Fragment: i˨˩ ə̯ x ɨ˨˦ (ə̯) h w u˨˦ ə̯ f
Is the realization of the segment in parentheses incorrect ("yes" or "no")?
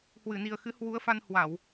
yes